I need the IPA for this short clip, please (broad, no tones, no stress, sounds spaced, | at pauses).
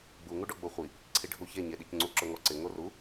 ɡ͡b u ŋ u ɖ ɔ ɡ͡b o χʷ i | ǀʰ i ɖʱ u ç e ɲ e ɗ i c ŋ͡ǀ u ǁ ʊ ŋ ɔ ǀ ɪ ŋ o r u